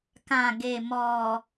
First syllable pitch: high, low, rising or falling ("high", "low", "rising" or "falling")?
low